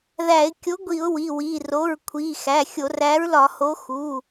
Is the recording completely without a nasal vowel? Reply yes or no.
yes